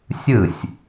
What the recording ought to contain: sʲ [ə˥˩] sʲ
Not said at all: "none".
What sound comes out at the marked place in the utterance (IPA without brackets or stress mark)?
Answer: ɯ˥˩